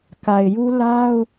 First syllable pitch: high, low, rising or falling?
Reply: low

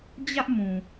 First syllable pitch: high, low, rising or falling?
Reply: high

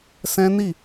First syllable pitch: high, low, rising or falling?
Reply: high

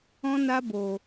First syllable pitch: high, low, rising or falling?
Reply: high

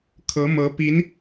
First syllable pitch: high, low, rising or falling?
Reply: rising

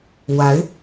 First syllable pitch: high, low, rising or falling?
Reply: rising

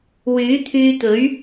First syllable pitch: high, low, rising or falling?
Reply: rising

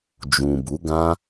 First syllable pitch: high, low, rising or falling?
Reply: low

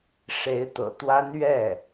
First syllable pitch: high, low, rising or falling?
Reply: rising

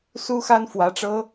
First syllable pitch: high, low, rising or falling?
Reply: high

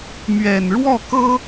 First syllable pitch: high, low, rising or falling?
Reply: low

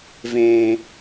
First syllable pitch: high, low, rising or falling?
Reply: low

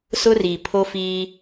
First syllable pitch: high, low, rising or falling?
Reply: high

